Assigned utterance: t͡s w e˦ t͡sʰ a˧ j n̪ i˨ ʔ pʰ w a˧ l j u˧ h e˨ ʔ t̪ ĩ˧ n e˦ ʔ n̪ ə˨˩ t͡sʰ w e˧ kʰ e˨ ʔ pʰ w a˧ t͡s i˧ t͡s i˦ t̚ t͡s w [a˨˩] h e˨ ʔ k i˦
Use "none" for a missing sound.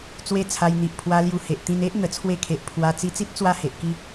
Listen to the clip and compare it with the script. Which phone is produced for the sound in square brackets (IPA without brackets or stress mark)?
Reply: a˦